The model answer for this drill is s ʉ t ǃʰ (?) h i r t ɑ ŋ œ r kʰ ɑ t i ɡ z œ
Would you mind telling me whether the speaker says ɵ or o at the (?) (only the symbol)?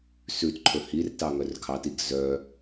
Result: ɵ